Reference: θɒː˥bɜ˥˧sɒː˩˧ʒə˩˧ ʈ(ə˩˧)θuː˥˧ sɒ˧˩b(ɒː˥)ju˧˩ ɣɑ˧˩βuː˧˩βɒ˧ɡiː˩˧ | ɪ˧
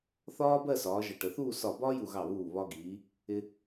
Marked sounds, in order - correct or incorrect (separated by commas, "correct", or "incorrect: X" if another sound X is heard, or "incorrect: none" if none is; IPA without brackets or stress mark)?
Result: correct, correct